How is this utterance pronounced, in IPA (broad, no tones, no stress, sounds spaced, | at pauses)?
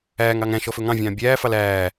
æː ŋ ɑ ŋ æ̃ ʃ ɔ f ɵ ŋ ɑ̃ vʲ ɑ̃ː bʲ æː f ɑ l æː